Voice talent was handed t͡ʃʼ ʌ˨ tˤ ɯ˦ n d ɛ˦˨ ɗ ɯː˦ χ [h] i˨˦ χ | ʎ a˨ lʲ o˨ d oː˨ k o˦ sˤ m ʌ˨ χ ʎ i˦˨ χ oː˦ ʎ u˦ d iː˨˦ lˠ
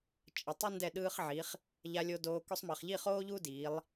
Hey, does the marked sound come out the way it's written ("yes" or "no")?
no